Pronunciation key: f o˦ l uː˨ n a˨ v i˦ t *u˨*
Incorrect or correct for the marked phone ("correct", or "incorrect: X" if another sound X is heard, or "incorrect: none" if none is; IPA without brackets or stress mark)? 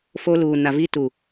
correct